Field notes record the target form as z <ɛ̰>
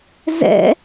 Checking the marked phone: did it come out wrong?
no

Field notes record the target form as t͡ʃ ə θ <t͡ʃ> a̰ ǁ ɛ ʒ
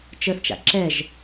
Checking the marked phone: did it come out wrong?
no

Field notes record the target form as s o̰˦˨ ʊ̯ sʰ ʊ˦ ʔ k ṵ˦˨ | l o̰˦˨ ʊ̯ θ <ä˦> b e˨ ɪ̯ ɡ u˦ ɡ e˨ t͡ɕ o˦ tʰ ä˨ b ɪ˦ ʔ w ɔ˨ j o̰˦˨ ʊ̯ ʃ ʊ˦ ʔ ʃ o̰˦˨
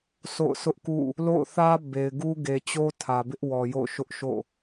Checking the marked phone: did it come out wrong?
no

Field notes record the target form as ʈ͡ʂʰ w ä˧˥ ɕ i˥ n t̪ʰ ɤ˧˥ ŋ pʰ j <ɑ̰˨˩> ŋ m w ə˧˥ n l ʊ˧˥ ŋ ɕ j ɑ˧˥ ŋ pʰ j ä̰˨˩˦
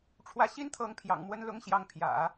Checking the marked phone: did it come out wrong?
no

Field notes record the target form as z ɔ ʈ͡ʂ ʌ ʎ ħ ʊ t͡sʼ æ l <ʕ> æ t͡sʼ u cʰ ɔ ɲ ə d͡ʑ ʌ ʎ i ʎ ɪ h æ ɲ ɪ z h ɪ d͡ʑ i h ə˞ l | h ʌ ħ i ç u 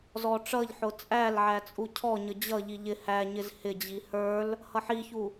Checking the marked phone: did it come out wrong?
no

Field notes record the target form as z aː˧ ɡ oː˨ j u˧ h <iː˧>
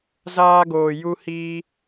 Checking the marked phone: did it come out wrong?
no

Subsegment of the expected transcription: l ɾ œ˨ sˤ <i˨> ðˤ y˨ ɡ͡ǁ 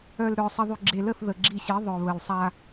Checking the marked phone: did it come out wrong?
yes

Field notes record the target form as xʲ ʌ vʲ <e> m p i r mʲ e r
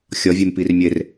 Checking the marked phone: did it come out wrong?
no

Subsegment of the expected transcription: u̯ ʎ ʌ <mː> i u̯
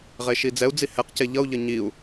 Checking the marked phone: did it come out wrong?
yes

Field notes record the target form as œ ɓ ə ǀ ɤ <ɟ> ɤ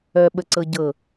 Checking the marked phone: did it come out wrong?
no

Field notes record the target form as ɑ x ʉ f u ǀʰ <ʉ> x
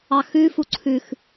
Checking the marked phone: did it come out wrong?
no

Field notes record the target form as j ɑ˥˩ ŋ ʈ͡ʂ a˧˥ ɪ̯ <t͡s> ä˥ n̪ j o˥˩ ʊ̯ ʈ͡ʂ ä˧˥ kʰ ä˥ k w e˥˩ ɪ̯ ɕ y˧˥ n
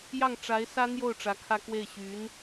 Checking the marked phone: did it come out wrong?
yes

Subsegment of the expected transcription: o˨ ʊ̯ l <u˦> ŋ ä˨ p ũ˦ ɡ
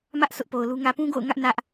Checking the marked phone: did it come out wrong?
no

